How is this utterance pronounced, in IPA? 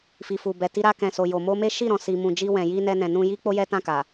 f i˨ f u˨ b ɛ˨ t i˧ ɾ a˧ k ɛ̃˨ s o˨ j o˨ m o˧ m e˦ ʃ i˦˨ ɾ ɔ̃˨ s i˨ m ũ˨ d͡ʒ i˧ w ɛ̃˨ j i˧ n ɛ˧ n ɛ̃˨ n ũ˧ j i˦ k͡p o˦ j ɛ˦ t ã˦˨ k a˨

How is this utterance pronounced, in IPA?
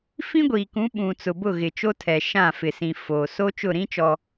f ĩ˦ ɡʷ iː˨ k ũ˨˦ ɓ ũ˨ t͡s ʊ˨ b ʊ˦˨ ɣ ɪ˨ t͡ʃ o˦ tʰ ɛ˨ ʃ ã˦˨ f ɪ˨ s ĩ˨ f oː˨ s oː˦ t͡ʃ ʊ˦˨ ɾ ĩ˦ t͡ʃ ɔ˨

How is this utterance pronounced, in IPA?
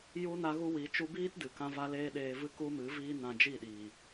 j u˦ n a˦ ɣ u˦ w i˨˦ t͡ʃ u˧ b iː˦ t d ɨ˨ k ã˦ v a˦ l eː˦ ɗ eː˧ v ɨ˦ k u˦ m ɨ˨˦ v iː˦ n ã˧ d͡ʒ i˦˨ ɗ iː˨

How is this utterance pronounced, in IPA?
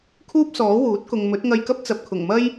kʰ uː˥ p̚ s ɔː˨˥ w uː˨˥ t̚ k ʊ˨ ŋ m ɵ˨˥ t̚ ŋ ɐ˧ j k ɐ˥ p̚ t͡s ɐ˨ p̚ kʰ ʊ˨˩ ŋ m ɐ˥ j

